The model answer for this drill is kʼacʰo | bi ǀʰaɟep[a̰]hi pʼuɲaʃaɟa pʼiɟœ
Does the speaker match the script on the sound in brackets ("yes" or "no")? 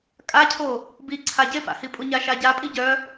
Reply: yes